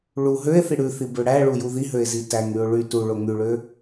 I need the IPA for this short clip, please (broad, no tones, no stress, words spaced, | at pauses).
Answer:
ɭu ɦøe̯θi ɽʉθibø ɽæɭuju ðiɦøe̯zi tæŋyo̯ ɭy tuɭo ŋyɭø